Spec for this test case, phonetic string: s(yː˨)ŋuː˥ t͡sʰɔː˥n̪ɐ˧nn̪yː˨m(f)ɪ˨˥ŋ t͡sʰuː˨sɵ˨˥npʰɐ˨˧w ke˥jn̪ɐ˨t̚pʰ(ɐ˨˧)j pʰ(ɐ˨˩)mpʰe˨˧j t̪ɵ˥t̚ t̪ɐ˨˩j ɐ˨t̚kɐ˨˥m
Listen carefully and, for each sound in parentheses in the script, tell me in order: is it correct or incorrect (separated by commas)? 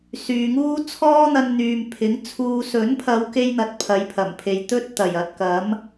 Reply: correct, incorrect, correct, correct